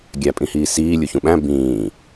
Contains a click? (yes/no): no